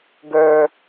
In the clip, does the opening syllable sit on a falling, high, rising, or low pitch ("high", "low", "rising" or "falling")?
low